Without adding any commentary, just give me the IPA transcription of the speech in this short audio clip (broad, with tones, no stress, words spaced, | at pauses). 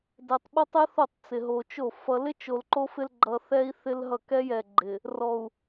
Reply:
dɛ˨tˤɓo˦tˤɛ˦θo˦˨tˤ t͡sɪ˨ ɦo˨t͡ʃo˦˨ fʌ˦ lɪ˦t͡ʃo˨l ǃo˦fɪ˦l ɡ͡ǃʌ˨ θɛ˦i̯θɪ˦lɦʌ˦˨ kɛ˦jɛ˨ɡ͡ǃɪ˨ | rɔ˨u̯